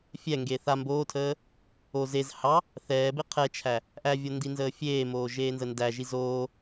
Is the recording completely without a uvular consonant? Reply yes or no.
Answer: no